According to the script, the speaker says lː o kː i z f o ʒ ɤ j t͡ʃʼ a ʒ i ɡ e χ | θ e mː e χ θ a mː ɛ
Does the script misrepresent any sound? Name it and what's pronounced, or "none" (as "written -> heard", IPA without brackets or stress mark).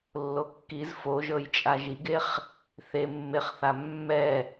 none